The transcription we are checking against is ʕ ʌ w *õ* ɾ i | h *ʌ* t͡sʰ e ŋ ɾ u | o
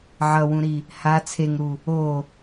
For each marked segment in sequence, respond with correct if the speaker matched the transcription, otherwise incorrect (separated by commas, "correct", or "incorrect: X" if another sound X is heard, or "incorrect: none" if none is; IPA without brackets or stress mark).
incorrect: ũ, incorrect: a